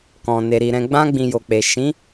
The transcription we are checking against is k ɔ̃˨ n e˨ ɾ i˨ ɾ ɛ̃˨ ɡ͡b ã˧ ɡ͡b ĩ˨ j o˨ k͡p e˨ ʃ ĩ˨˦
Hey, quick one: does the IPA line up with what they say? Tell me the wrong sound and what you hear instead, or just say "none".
none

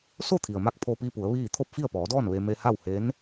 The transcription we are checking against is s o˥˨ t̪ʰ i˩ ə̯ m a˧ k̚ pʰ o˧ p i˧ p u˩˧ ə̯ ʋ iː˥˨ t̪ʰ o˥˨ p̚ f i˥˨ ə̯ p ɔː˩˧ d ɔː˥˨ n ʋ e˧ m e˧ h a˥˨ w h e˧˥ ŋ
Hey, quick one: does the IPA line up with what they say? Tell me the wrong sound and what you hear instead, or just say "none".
ŋ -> n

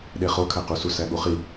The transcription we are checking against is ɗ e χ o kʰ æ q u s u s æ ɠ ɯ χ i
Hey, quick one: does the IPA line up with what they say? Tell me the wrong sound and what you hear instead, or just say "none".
ɯ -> u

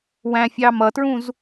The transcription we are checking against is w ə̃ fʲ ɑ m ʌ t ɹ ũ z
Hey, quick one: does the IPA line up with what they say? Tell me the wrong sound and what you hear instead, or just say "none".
ə̃ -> æ̃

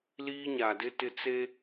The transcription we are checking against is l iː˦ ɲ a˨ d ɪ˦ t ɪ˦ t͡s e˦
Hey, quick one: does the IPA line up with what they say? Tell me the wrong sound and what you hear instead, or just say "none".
none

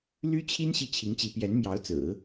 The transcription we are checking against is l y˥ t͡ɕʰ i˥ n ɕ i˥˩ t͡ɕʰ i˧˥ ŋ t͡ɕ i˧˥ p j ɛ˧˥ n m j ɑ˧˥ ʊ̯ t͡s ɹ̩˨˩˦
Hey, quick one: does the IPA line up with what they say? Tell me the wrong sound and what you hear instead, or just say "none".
none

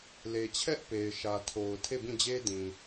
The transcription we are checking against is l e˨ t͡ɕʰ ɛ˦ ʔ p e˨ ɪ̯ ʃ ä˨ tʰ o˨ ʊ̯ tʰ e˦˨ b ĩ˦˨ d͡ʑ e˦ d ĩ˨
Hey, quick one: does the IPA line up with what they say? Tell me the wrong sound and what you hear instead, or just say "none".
none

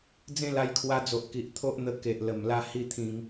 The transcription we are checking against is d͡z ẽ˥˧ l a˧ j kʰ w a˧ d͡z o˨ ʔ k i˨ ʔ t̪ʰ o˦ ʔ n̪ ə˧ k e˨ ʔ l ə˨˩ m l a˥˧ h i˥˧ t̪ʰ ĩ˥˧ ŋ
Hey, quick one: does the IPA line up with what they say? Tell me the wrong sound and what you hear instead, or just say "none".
ĩ˥˧ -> ĩ˧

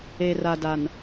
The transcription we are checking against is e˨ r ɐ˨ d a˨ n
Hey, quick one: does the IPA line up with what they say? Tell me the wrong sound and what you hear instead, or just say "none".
ɐ˨ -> a˨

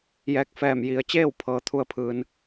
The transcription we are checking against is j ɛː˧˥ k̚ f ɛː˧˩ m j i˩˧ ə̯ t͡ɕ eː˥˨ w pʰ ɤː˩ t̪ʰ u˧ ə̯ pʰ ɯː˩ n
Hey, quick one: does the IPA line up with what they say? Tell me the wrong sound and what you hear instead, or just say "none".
none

